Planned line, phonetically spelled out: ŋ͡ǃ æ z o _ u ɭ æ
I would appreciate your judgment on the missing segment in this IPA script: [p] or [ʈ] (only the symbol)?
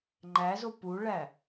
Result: p